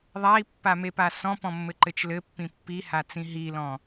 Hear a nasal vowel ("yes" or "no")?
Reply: yes